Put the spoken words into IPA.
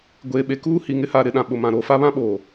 ɡʷ eː˨ ɓ e˨ k uː˦ h i˨ ŋ ɪ˦ h aː˨ ɾ ɪ˦˨ ɗ ã˨ ɓ ʊ˨ m ã˨ ɾ oː˨ f a˦ β ã˦ ɓ oː˨

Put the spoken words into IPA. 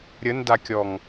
ɾʲ ə n d a kʲ ɔ ŋ

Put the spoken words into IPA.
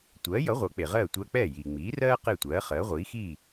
tʷ ɜː˩˥ j ʌ˩˥ ʁʷ ɤ˩˥ k͡p e˩ ʁ ɜː˥˩ tʷ ɜ˧ k͡p ɛː˥˩ j iː˩ ŋ͡m iː˩˥ r ɜː˥ q e˥˩ tʷ ɜː˩˥ χ ɜː˩˥ ʁʷ iː˩˥ x iː˥˩

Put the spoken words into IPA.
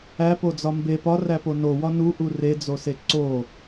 æ p o d͡z ɒ m b e p ɒ r æ p o n o w ɒ n u ʔ u r e d͡z o s e ǀ o

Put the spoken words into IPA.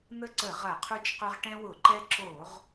n̪ ə˦ ǀ ə˧˩˧ ʁ ɐ˧˩˧ qʰ u˦ t͡ʃ q ʏ˦ ʁ ʈ ɛ̃˦ w ʊ˧˩˧ ǃ ɛ˦ ǁ oː˧˩˧ ʁ

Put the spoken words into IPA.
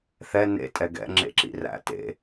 θ ɛ n ḛ tʼ ɛ ɡ ɛ̰ ŋ͡ǁ ḛ ǁ ḭ r æ̰ t ḛ

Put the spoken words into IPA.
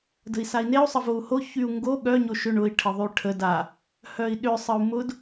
d ə̤ i̯ s a i̯ n e u̯ sˤ ə v o u̯ h o ç y u̯ ŋ ɡ o ɠ œ ɲ o ʃ ʏ ɳ ʊ i̯ ʈʰ ə ðˤ y ʈʰ ə d a | h œ i̯ ɗ ʏ sˤ ə u̯ m ʊ d

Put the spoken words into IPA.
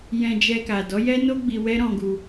j ɛ̃˧ d͡ʒ ɛ˧ k a˨ d ɔ˨˦ j ɛ˦ n o˦ ɡ͡b i˧ w ɛ˦ ɾ ɔ̃˧ ɡ u˧

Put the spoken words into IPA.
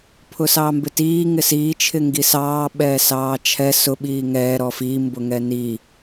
pʰ ʊ s ɑː m b ɪ t iː ŋ ɪ s iː t͡ʃʰ ɪ ŋ ɡ i s ɑː ɓ ɛː s ɑː t͡ʃʰ ɛ s ʊ ɓ iː ŋ ɛː ɾ ɔ f i m b ʊ ŋ ɛ n i

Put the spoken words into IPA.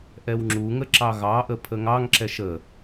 ʔ ɛ w ŋ͡ǁ u ŋ ə ǁ ɑ ɣ ɑ ʔ ə pʰ ə ŋ ɑ ŋ ǁ ɛ ʃ ə

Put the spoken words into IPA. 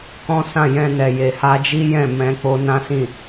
k ɔ̃˦ s ã˦˨ j ɛ̃˧ n ɛ˨ j e˨ h a˧ d͡ʒ i˦ j ɛ̃˦˨ m ɛ̃˨˦ k͡p o˧ n ã˦ s ĩ˦˨

